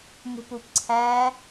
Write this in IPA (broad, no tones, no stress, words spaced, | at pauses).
mṳpupǀʰæ